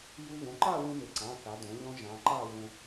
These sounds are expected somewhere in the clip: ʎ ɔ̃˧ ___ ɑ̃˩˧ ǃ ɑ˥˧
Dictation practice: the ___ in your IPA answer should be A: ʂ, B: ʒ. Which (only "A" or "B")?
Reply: B